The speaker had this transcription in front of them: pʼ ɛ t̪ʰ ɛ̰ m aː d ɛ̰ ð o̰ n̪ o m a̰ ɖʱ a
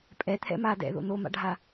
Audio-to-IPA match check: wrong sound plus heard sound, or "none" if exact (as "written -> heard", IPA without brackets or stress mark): none